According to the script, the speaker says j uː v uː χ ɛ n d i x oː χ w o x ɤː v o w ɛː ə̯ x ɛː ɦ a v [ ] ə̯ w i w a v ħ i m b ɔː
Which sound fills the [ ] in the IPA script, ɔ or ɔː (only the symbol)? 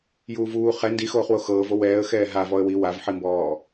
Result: ɔ